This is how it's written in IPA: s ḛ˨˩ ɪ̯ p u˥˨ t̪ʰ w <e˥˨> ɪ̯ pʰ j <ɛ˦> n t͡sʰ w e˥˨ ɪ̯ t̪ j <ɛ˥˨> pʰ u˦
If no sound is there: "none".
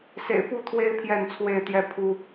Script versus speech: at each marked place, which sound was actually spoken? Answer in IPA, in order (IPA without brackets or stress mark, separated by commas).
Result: e˦, ɛ˥˨, ɛ˥˨